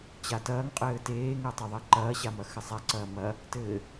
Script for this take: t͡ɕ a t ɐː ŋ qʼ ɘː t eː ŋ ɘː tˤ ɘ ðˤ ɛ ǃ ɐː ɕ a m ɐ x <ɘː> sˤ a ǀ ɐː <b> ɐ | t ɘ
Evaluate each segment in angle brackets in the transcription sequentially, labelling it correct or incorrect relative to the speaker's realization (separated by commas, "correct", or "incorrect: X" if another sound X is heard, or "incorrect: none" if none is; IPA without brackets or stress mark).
incorrect: ɘ, incorrect: m